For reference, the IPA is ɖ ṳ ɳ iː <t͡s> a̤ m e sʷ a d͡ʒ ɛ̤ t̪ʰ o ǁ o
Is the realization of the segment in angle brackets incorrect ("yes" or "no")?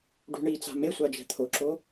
no